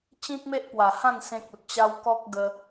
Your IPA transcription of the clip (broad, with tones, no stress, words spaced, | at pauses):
t͡ɕĩ˦k̚me˦ʔpwa˨˩hã˥˧n sẽ˦k̚u˨t̚ t͡ɕa˦w kɔ˦k̚ ɡə˦